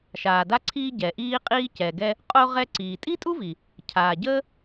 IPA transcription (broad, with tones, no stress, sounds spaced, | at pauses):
ʃ aː˩ d a˧ ǀʰ iː˧ ɟ ɛ˩ ʔ iː˧ qʼ iː˧ c ɛ˩ ɡ ɛ˧ | qʼ o˧ ʁ ɛ˧ ǀ iː˩ tʼ i˥ tʼ u˥ v i˩ | cʰ aː˩ ɟ əː˥